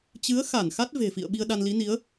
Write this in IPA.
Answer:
t͡ɕɨ˨˦ə̯xa˧˩n xa˦˥t̚ve̤˨˩fḭ˧˨ə̯ɓi˧ə̯ ɗa˧n li˨˦ni˨˦ə̯

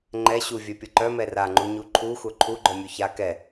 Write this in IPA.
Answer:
ŋ͡ǃɛ ɕuvʲœpʲɤ ǃœmɛ raŋ͡ǃuɲu ǃʰuxʷœ ǃʰuɡ͡ǃœmʲu ça kɛ

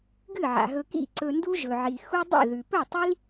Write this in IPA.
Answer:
ɡɨ˦˨ʕa̰˨ɦɵ˧kḭ˦˨ ǀɵ˧ndu˦ʒɵ˨ ʕi˧ xu˦dˤḭ˦˨ðʉ˨ pɵ˦˨tˤi˦l

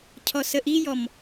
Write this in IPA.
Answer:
cʰɔsəʔijɔm

